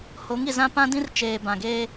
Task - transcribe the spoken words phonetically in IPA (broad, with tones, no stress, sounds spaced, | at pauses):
h o˨˦ ŋ i˨ z ã˦ p ã˦ d ĩ˦ r t͡ʃ eː˨ b ã˨ ɡ eː˦